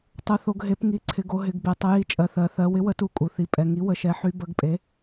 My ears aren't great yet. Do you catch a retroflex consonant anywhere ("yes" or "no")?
no